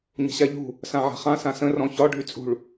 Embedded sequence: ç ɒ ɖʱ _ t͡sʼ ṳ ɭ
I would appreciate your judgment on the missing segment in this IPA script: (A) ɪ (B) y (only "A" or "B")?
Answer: B